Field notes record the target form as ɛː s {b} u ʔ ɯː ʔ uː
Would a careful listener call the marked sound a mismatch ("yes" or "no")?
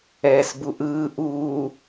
no